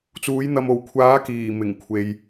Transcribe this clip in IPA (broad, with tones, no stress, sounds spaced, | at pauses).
t͡s uː˨˥ j n̪ ɐ˨ m o˨˩ w kʷʰ aː˨˥ k iː˨˩ m ɪ˨˩ ŋ kʷʰ e˨ j